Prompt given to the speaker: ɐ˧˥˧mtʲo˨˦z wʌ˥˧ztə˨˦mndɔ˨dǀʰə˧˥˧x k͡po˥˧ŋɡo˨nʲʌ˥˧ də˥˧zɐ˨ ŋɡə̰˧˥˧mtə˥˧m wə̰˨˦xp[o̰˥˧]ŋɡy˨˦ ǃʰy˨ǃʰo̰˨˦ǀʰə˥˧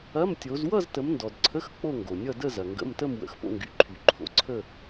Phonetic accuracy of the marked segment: correct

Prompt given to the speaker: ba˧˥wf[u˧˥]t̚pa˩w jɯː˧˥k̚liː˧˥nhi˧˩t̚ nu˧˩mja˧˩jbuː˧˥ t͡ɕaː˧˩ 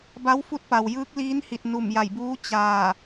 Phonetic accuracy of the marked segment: correct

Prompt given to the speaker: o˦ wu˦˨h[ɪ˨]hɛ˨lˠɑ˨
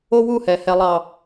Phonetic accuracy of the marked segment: incorrect: ɛ˨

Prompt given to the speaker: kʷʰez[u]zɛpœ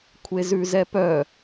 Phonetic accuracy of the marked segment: incorrect: ʉ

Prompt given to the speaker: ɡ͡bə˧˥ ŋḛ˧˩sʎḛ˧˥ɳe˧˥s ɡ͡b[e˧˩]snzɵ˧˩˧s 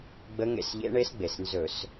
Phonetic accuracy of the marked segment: incorrect: e˩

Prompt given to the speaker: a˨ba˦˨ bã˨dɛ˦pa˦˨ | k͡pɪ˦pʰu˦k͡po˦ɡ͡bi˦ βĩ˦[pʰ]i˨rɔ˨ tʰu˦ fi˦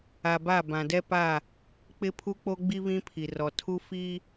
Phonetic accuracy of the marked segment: correct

